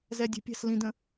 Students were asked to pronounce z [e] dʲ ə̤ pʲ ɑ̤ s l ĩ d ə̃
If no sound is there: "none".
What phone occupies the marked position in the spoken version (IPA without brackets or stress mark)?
ɛ